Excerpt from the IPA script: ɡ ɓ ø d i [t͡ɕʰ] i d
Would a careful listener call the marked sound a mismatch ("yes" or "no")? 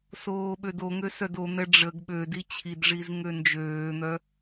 no